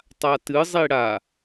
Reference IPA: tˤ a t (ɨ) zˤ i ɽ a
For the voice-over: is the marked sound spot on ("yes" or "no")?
yes